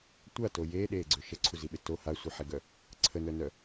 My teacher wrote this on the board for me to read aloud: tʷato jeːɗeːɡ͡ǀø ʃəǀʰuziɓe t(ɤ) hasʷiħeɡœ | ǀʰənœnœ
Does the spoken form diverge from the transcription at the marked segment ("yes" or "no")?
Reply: yes